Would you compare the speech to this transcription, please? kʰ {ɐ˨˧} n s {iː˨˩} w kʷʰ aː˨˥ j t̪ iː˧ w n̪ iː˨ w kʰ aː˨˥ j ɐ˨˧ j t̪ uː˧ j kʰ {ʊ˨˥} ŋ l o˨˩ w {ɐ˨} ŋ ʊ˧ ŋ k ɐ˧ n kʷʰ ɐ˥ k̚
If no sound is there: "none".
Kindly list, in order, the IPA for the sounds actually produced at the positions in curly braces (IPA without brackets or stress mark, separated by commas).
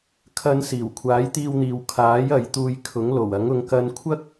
ɐ˨˧, iː˨˩, ʊ˨˥, ɐ˨˥